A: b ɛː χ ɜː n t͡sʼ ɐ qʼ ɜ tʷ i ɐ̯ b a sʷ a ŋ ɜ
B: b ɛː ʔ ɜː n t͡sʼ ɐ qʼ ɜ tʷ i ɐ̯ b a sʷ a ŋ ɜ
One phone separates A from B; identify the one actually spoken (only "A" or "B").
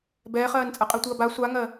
A